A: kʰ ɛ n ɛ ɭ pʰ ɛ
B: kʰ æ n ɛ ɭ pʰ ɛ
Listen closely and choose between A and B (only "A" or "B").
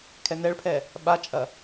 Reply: A